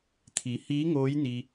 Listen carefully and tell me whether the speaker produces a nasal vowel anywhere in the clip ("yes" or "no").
no